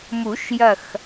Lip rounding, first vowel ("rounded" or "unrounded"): rounded